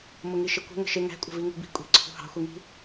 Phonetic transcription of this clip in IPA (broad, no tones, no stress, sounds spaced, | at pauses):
m ʊ ŋ i ʃ ɪ kʷ ə̤ ŋ ə̤ ʃ ɪ ŋ æ̤ kʷʼ ə̤ v i ŋ ṳ b i̤ kʷʼ i̤ ǀʰ ṳ h ɑ̤ xʷ i ŋ i̤